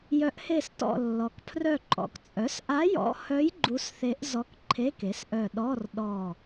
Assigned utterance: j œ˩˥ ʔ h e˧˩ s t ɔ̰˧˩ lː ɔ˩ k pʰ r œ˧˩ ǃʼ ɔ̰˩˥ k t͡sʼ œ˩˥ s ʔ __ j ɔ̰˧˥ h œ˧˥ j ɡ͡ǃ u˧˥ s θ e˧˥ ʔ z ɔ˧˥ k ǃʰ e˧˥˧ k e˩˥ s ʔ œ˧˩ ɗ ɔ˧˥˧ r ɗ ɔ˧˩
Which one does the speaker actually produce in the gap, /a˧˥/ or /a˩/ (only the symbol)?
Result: a˧˥